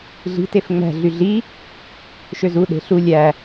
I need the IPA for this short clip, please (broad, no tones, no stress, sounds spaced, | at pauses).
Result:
ɮ i̤ t e f ŋ͡m æ̤ ɮ y ɮ i | ʃ ø z u ɗ e̤ ɬ u lʲ æ